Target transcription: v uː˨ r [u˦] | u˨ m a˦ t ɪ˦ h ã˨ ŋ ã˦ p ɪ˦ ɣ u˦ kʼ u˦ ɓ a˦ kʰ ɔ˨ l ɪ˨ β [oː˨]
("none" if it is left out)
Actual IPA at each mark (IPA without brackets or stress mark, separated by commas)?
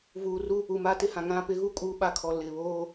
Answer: u˦, oː˦